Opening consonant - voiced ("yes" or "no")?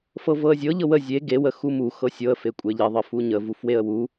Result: no